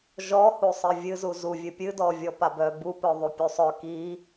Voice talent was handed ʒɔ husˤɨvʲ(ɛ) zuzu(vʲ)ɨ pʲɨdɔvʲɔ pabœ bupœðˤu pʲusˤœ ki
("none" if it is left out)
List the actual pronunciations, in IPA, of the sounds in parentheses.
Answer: ɨ, vʲ

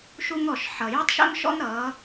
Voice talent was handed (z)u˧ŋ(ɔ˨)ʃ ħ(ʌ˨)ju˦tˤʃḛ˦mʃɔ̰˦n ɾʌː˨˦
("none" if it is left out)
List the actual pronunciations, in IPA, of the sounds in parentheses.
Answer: ʃ, ɔ˨, ʌ˨

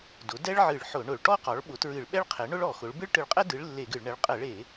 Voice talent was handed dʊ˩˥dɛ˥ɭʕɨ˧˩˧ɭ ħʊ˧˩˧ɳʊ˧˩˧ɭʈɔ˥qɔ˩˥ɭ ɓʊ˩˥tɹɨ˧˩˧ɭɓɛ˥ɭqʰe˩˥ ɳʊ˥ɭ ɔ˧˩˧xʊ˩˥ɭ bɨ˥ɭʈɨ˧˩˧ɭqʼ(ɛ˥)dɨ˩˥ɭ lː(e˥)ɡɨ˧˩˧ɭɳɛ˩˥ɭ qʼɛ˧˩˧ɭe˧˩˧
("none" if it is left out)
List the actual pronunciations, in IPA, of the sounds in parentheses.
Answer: ɛ˥, e˧˩˧

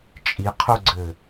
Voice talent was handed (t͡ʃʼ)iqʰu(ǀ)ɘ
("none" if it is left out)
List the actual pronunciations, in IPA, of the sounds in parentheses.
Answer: t͡ʃʼ, ɡ͡ǀ

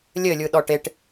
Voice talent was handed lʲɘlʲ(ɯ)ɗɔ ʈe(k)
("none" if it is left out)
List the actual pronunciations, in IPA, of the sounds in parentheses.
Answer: ɯ, ʈ

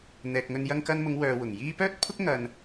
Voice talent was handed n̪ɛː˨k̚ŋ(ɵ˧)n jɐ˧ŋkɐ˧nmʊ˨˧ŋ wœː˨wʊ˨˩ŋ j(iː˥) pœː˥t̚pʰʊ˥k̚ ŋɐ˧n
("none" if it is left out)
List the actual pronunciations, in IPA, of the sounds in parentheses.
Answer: ɵ˧, iː˥

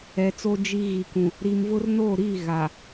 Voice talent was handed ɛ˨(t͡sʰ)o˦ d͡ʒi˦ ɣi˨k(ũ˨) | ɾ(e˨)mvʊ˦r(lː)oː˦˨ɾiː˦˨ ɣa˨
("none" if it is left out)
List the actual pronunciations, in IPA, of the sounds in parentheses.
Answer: t͡s, ũ˨, i˨, n

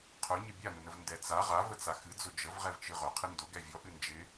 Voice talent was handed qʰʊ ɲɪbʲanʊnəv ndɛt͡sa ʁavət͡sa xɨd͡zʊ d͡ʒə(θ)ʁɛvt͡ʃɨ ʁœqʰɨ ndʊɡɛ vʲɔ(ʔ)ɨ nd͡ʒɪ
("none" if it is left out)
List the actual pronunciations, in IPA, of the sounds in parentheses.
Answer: v, ʔ

